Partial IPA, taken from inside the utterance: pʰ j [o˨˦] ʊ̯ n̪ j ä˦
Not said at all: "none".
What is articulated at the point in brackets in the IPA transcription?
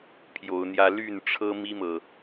o˨˦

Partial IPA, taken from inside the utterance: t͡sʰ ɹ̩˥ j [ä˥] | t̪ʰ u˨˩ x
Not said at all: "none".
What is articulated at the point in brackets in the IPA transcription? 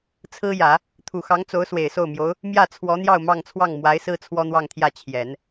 ä˨˩˦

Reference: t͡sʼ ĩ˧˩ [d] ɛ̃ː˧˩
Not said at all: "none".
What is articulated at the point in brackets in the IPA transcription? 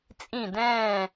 d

